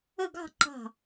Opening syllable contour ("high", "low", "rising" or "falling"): falling